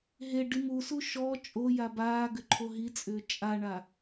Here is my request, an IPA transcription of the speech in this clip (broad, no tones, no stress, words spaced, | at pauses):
ɦe ɖimusu ʃɔ t͡ʃʼoja baːɡʏ ǃʰoɦit͡sʼʏː t͡ʃʼaɳa